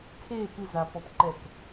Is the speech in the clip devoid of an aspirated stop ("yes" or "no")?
no